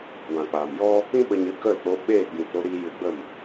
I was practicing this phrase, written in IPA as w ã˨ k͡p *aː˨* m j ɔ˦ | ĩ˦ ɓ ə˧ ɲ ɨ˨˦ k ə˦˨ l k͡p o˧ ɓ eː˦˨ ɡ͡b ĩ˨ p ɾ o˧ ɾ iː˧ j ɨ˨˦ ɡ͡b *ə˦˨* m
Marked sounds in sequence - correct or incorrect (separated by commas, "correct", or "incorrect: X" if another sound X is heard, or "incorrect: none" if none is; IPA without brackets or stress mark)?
correct, correct